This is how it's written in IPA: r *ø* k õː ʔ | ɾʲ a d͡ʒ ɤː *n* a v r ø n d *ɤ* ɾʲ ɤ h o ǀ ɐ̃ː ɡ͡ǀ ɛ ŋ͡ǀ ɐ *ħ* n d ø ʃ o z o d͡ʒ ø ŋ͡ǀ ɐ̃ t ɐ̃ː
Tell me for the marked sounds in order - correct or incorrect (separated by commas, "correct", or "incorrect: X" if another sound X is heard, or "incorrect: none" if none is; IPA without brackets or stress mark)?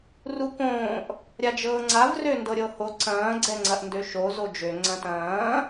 incorrect: u, incorrect: ŋ͡ǀ, correct, incorrect: ʔ